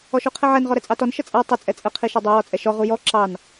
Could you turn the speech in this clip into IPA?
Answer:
ɔ ʃ u qʰ ɛ ʕ ɛ n ʁ ɔ ɾ ɛ t͡sʼ ɑ t ɔ n ʃ ə t͡sʼ a tˤ ə t͡sʼ ɛ t͡sʼ ə qʰ i ʃ ɛ dˤ u w ɔ t͡sʼ ɛ ʃ ɔ ʁ u j ɔ ǁ ɑ n

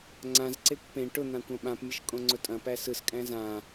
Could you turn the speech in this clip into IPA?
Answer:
ŋ͡ǀ ã z ǀ e kʷ p ẽ ʈ ʊ n̪ ã kʷ ã ɓ ã p mʲ ɐ ʃ kʼ õ ŋ͡ǀ ʊ tʼ ɐ̃ p æ s ɯ s kʼ æ̃ z ã

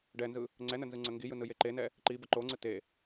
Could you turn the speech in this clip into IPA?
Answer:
ɖ ɛ n z ɯ | ŋ͡ǀ ɛ n ə n z ɯ ŋ͡ǀ ə ŋ ɡ i j ɯ n ɯ j e ǃ e n ɛ | ǃ i b ə ǃ o ŋ͡ǀ ɯ t e

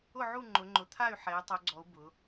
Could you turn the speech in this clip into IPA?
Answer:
ʊ˦˨ ʕ u˦˨ ŋ͡ǃ ʊ˩˧ ŋ͡ǃ ʊ˩˧ t̪ʰ a˦˨ y̯ ħ ɛ˩˧ j tˤ o˩˧ ɡ͡ǀ ɔ˩˧ u̯ b ʊ˩˧

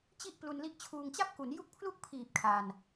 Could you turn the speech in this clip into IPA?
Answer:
t͡ɕ i˥˩ ʔ p l u˧ n l i˦˥ ʔ t͡ɕʰ uː˧ ŋ t͡ɕ a˥˩ p̚ k u˩˦ n j u˥˩ k̚ pʰ l u˥˩ k̚ pʰ iː˨˩ p̚ kʰ a˧ n

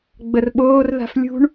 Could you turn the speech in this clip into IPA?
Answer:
ɡ͡b ə r ɓ oː r ð a̤ f lʲ ṳ ɳ

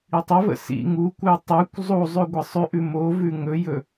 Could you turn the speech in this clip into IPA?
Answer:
i tˤ ə v ə̰ s ḭ ŋ u kʷ ə j tˤ ʉ kʷ zˤ u zˤ ʉ ɡʷ ə sˤ ʉ ʔ ʉ m o v ʉ ŋ ɵ j ɵ

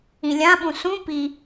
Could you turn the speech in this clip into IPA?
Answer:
ĩ lʲ ã ɓ ũ s ũ p i

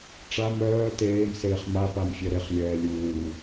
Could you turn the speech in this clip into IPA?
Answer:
ʈ͡ʂ a m œː t eː m s eː χ m a p a m fʲ ɛ ɾ e χ lʲ ɛː lʲ uː

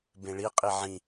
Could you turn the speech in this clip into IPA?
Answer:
b ẽ ɭ i qʼ i ʕ ĩ

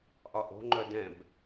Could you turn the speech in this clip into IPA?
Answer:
ʔ ɒ ʔ o̤ ŋ͡ǃ œ d ɛ̃ b

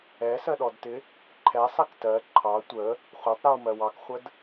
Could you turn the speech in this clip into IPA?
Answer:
ɛ s ɜ ɗ ɔ d t ɪ | ǃʰ ɛ sˤ ɛ k t ɜ ǃʰ ɑ tʷ ə | χʷ ɑ tˤ ɾ i w m ɜ w ɑ k χʷ ə d

